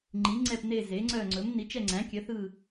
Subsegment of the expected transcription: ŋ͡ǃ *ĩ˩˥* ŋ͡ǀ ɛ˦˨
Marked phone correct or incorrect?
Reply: incorrect